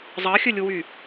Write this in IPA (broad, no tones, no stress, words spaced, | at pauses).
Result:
zˤɑxʲɵlʲuwy